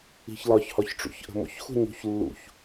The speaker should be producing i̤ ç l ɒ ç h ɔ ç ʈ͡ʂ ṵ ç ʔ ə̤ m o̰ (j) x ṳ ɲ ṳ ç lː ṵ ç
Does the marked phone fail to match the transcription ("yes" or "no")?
yes